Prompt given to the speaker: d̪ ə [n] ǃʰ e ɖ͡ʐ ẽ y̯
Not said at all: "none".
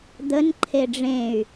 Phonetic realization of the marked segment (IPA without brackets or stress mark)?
n